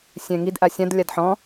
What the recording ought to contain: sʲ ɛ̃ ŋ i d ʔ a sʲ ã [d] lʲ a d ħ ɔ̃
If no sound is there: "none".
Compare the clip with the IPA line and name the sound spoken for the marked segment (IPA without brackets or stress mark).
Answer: d